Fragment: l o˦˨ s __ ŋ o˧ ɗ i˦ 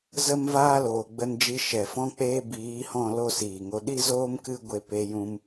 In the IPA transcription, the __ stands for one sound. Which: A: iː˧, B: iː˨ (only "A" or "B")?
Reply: B